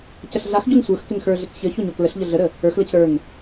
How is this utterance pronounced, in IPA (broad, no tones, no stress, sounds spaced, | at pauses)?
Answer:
c ə ɬ ɮ a x ɟ o ŋ sʷ ə˞ x k ɘ ŋ x ə˞ ɮ ɘ k ç ɘ ç o ɲ o k l ə ɬ ʎ ə ɮ ə ɾ ə | ə˞ x l ə c ɾ ə˞ ŋ